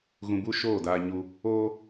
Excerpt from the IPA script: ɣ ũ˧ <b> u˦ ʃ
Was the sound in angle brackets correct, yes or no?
yes